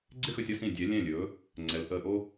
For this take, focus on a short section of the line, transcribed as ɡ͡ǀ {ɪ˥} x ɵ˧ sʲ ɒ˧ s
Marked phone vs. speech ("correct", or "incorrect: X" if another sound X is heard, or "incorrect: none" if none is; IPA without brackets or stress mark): correct